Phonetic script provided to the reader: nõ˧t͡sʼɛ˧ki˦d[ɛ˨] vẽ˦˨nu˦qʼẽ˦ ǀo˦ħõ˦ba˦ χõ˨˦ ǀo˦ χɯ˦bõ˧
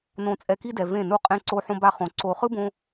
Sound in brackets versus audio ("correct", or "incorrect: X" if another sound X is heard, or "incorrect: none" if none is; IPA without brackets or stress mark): correct